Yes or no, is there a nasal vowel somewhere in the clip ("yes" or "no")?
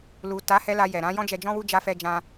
yes